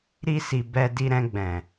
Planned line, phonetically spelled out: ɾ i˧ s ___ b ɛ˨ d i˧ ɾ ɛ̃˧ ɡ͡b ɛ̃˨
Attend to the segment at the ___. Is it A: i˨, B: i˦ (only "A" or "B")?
A